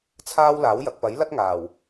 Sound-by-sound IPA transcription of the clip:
t͡sʰaː˥w laː˨˥wjɐ˨k̚ pɐ˨˥jlɐ˥t̚ ŋaː˨˩w

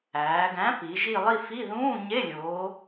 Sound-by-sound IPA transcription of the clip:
æː˩˧ɡæ̃˨˥pi˩˧ ʒi˥˧ lˠi˥˧fi˧˥˧ ðũː˧˥˧ɲe˧˥˧ lʲoː˨˥

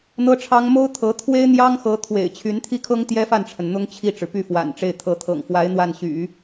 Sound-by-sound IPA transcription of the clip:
n̪ɤ˥ʈ͡ʂʰɑ˥ŋ mo˥ʊ̯t̪ʰɤ˧˥ t̪ʰwe˥ɪ̯n̪jɑ˥ŋxɤ˧˥ t̪ʰwḛ˨˩ɪ̯t͡ɕʰy˧˥nt̪ʰi˥˩kʰɤ˥ŋ t̪jɛ˥fa˥˩nʈ͡ʂʰə˩n n̪ʊ˥ŋt͡ɕʰi˥˩ʈ͡ʂɻ̩˩ py˥˩fwa̰˨˩nʈ͡ʂe˥˩ɪ̯ t̪ʰɤ˧˥t̪ʰɤ̰˨˩ŋ fwa˧˥ɪ̯ n̪wa˥˩nɕy̰˨˩˦

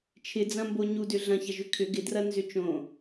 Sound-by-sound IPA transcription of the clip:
t͡ʃʰɪd͡zɐ̃mbo ɲudʏ ɮɐ̃çɐʒʏ kʰʏ ɡɪdrɐnzʏ t͡ʃõ

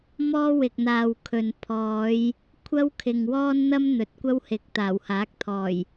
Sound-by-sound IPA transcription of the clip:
mɔː˥wɪ˨k̚n̪aː˨w kʰɵ˨n pʰɔː˨˧j | kʷʰɐ˥wkʰɪ˨ŋ wɔː˥nn̪ɐ˥m n̪ɵ˨˥t̚kʷɐ˥whɪ˨k̚ t̪aː˨˩whaː˨˥k̚t̪ʰɔː˨˩j

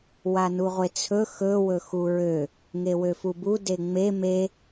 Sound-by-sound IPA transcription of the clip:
wanuʁʷet͡sʰɵ xɵ wɵxuɹø | ŋewøfubu deŋ͡me me

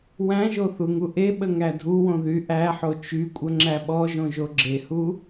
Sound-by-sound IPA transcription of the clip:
wæ̃ʒo θuŋuʔeɓə ŋædʱuwõ ðyʔæħo t͡ʃykʷʼə ŋ͡ǁæɓɔʒõ ʒoɡ͡ǁehu

